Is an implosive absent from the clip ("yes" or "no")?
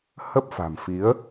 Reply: yes